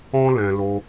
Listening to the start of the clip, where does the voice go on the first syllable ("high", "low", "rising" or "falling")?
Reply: high